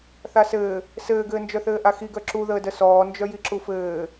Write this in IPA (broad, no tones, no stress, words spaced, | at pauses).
θasɘː | sɘːɡɘːnd͡ʒœθɘː ʔaxiɡœ ǁuðəː dəsɔːnd͡ʒœji ǁufɘː